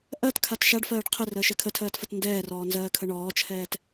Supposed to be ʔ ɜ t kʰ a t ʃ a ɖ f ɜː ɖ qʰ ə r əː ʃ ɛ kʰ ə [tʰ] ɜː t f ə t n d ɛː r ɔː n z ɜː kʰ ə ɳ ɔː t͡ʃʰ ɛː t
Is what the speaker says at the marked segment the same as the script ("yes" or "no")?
yes